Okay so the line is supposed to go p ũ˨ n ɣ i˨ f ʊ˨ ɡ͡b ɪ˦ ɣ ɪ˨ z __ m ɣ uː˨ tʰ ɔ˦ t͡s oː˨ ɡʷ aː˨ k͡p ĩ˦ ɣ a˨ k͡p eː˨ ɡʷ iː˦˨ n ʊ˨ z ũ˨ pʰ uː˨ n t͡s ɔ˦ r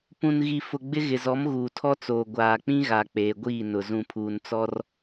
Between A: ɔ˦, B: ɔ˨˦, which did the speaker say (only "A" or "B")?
B